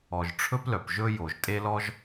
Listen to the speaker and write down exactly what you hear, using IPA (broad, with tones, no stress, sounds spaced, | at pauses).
ɔ˩ ʒ ʈ͡ʂʰ ɵ˥ p l œ˩ p ʒ ɵ˥ j o˩ ʒ tʼ e˥ l ɔ˥ ʒ